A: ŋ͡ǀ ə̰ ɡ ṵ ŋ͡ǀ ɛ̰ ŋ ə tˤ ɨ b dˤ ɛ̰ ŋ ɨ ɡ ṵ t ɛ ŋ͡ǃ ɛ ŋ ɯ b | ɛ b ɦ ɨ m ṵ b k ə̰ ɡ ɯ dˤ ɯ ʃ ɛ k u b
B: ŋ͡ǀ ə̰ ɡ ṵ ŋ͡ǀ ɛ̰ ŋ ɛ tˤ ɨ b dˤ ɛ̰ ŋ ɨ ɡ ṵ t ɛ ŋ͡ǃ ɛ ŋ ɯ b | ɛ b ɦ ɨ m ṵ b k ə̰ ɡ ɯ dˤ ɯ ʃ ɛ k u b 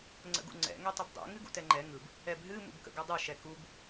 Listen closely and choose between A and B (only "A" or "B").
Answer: B